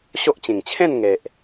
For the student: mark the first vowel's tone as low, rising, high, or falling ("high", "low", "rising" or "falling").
high